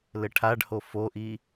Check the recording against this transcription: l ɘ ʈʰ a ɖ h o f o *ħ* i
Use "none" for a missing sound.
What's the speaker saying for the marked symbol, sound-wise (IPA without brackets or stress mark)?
ʔ